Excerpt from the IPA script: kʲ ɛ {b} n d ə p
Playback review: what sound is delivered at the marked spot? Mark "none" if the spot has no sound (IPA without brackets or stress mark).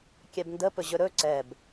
b